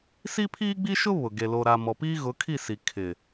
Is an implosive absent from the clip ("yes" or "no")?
yes